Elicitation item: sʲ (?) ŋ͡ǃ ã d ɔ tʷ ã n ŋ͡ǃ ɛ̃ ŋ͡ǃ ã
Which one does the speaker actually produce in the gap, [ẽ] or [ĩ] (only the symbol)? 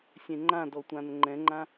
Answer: ẽ